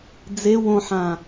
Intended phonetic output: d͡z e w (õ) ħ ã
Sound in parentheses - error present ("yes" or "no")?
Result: no